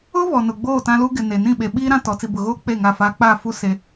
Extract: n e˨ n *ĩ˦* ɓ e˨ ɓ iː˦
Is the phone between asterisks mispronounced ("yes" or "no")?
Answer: yes